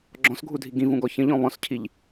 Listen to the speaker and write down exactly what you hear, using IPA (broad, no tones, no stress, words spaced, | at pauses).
ɡ͡ǁɔ̃sɡʱudʱi ɡĩvũɡɔ çə̃ʎɔ̃ βɔ̃scʰiʎ